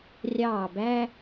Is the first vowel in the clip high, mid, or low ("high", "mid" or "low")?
low